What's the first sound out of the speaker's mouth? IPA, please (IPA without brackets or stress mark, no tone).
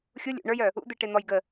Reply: xʲ